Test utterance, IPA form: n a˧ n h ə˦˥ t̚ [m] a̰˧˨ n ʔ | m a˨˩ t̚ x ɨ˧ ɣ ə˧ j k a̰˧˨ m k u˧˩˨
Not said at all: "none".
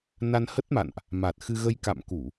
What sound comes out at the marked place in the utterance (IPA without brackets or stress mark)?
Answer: m